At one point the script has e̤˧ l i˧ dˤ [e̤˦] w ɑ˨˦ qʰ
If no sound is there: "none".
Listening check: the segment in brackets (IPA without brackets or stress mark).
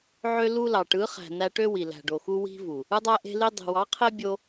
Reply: e̤˨